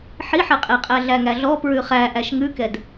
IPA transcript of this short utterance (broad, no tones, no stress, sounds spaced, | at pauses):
ħ i ħ ɛ qʼ e qʼ æ ɮ æ ŋ æ ɮ ɔ p ɹ ʉ χ æ ʔ æ ʃ ŋ ʉ k ɛ d